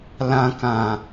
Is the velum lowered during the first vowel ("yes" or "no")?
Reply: yes